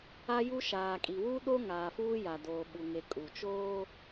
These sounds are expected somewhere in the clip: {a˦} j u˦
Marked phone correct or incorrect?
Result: correct